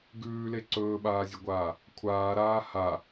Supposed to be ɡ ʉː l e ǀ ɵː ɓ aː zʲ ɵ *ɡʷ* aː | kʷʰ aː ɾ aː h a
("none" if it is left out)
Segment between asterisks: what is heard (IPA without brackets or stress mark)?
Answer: ɡʷ